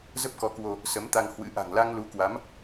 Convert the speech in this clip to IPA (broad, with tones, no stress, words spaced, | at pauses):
zə˦˥p̚kɔ˨˦kwo˧ | sə˨˦mt̪a˧ŋ hwɨ̰˧˥ ʔa̤˨˩ŋla˧ŋ lu˨˦kwa˨˦m